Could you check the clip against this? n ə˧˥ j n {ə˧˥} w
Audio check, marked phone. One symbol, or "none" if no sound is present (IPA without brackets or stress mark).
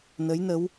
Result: ə˧˥